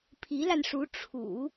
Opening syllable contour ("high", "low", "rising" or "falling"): rising